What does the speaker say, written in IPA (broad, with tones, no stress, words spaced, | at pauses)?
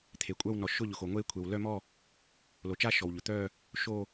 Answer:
t̪ʰe˩kʷʼœ˥˧w nɔ˩ʃʊ˥˧ʎʊ˩xo˩ ŋʷe˥˧ kʷʰe˩wlœ˥˧mɔ˥˧ | lo˩t͡ʃa˥˧ ʃɔ˩wʎʊ˩ t̪œ˥˧ | ʃo˥˧